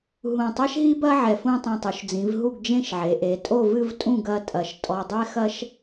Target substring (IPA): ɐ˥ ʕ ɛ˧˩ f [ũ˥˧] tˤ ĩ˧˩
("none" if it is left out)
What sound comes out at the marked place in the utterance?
ũ˥˧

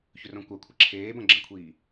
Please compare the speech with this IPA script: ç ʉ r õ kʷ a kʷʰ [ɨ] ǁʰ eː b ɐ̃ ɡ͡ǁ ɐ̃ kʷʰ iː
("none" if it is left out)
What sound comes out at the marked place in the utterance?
ɨ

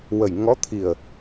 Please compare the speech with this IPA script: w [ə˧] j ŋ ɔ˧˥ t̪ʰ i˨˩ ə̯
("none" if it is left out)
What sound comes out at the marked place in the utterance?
ə˨˩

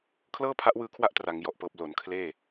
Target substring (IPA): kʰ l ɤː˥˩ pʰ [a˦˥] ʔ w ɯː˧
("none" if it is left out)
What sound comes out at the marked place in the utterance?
a˦˥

